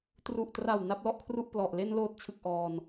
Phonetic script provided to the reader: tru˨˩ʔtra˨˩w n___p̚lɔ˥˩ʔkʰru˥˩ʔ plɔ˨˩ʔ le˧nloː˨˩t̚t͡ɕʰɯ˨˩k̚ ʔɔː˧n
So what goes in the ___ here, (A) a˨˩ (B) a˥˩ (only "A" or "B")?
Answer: B